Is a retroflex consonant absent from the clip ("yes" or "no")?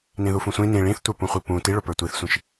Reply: no